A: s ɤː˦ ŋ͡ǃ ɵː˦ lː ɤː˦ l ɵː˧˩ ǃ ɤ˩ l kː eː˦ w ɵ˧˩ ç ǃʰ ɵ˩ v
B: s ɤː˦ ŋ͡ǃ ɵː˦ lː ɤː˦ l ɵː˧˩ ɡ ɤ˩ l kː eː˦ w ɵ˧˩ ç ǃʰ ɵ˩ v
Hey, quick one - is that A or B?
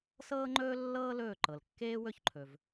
A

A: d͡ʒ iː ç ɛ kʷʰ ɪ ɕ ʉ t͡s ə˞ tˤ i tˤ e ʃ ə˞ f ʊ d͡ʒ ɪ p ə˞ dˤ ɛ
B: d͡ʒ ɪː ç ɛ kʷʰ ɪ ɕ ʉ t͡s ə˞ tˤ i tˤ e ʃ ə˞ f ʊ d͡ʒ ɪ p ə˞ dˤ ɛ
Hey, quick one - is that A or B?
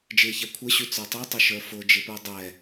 B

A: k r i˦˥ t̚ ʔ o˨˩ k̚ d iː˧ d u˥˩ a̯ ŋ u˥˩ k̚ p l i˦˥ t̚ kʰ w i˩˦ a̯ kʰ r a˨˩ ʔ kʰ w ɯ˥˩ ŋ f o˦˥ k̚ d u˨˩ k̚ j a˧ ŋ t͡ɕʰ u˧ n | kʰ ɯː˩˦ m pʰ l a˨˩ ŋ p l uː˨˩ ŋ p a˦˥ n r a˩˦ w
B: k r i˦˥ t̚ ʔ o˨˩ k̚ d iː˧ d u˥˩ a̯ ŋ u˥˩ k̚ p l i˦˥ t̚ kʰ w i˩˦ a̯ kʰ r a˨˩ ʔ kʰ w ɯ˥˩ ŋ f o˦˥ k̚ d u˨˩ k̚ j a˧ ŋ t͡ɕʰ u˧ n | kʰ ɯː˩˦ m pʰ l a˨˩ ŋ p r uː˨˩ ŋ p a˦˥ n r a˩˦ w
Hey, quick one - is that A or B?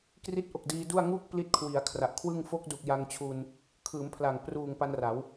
B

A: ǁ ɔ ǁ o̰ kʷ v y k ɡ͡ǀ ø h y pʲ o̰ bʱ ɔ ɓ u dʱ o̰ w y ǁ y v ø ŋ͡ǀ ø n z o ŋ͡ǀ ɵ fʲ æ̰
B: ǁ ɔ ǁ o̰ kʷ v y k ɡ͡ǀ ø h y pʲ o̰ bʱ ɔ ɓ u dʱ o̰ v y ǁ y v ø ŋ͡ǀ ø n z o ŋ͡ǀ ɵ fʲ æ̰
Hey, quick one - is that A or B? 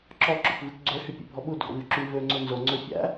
B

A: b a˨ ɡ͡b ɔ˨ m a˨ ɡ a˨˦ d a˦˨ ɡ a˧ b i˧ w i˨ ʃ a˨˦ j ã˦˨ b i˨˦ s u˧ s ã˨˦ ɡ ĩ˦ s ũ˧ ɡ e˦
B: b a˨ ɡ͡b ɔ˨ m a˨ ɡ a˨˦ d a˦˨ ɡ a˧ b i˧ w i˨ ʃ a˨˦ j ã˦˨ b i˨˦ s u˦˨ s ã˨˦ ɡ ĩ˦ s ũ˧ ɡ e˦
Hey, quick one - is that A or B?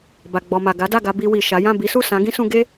B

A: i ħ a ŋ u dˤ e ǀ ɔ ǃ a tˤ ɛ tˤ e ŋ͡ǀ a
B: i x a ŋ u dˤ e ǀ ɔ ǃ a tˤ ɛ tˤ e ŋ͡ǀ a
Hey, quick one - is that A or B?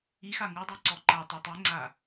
B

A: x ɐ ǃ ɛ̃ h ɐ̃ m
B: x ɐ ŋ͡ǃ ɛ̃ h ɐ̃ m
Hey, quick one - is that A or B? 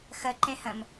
A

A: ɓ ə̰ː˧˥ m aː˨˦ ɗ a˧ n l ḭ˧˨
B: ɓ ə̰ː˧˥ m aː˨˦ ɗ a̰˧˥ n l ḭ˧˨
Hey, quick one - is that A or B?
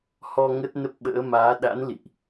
B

